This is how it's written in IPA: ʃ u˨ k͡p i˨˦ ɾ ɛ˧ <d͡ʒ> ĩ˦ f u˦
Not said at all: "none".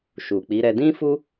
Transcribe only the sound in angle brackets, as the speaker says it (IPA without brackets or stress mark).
d